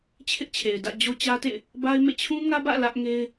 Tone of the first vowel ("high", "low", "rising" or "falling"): high